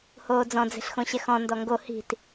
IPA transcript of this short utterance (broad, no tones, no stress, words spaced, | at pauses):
hoːd͡zɔ̃ d͡ze̤ɬxõɕɛxɔ̃ ndɔŋɡo hi̤t